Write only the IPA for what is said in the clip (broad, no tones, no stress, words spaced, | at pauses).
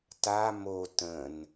ta mo tə̃n